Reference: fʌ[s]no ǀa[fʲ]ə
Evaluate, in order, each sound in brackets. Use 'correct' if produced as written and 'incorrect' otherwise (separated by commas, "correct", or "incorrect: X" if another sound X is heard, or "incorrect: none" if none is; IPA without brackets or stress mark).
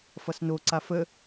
correct, incorrect: f